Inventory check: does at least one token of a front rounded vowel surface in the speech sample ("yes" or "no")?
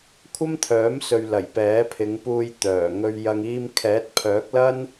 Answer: yes